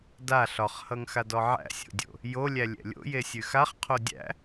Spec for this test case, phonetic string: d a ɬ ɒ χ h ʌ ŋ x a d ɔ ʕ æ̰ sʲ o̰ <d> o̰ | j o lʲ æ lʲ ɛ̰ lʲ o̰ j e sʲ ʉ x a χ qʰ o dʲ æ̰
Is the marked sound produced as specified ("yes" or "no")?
no